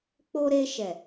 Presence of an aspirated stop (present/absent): absent